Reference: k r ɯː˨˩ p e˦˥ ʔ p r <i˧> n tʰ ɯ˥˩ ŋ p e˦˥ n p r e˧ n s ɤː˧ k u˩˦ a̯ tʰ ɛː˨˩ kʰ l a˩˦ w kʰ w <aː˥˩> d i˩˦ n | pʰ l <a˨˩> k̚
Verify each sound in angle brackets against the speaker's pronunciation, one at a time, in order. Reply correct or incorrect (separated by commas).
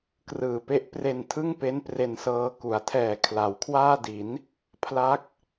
incorrect, correct, incorrect